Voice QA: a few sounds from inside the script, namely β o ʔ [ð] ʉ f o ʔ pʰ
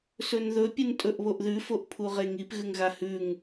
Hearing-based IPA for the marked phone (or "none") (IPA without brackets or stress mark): ð